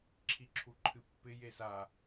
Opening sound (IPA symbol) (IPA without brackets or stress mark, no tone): ǁʰ